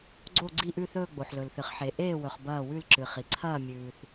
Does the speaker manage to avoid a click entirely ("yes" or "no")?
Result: no